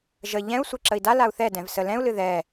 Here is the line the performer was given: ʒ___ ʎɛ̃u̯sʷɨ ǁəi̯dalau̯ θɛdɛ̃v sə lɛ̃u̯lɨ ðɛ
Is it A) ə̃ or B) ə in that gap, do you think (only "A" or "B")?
B